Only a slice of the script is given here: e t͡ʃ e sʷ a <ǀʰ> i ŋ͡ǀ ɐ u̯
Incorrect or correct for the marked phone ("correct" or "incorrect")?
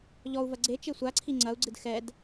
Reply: correct